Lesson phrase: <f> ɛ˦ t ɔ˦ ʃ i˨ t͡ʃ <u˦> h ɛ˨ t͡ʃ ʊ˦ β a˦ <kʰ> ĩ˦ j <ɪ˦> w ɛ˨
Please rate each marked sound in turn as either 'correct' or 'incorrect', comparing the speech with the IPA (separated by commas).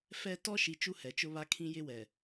correct, correct, correct, correct